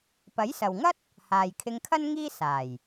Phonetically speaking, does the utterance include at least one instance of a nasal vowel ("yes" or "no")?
no